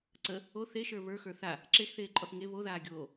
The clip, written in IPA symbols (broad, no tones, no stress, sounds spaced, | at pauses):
ǀ ə | o θ e ʃ ə˞ β ə˞ x ə˞ θ a | ǁ e x θ eː ǃʼ ɔ θ ŋ e β o ð aː ɡʲ oː